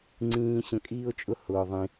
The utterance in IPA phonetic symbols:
ŋ͡ǀĩː˧ ɕə̃˧kʼiː˦o̯t͡ʃʼʊ˦ hʊː˧ ðˤĩ˧

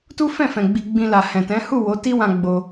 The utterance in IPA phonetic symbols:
tu˦fɛ̃˦˨fɛ̃˨ ɡ͡bi˧ɡ͡bĩ˧ la˨hɛ̃˨tɛ̃˨˦ hu˦˨ wo˨˦ti˦wã˧ ɡ͡bo˧

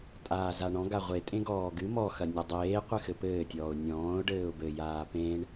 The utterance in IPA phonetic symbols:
tʼaːzaɳɔ̃ ɡaʁʷetʼẽ ɡɔːɡɨ mɔxɐ nʲɔdˤeː qʷɨxɘpɘːtʲɔːʊ̯ nʲɔ̃ːʊ̯ ɖɘːʊ̯bɘ jaːpẽɳ

